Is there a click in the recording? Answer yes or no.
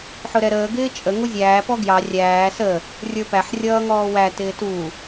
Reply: no